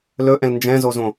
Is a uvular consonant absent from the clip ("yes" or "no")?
yes